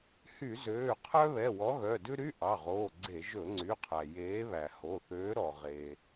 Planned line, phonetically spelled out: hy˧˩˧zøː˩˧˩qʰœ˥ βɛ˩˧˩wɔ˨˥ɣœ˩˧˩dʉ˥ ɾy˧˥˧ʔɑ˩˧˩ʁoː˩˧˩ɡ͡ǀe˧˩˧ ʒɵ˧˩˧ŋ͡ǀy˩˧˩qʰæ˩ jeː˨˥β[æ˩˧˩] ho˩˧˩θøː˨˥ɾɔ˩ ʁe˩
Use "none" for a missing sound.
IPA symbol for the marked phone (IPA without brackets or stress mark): æ˩